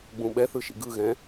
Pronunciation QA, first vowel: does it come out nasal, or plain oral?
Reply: nasal